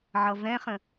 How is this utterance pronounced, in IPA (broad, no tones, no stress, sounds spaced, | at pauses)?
ʕ ʌ v ɛ̃ χ ə̃